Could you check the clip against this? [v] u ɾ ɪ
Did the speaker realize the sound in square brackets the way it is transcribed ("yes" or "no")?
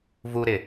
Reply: yes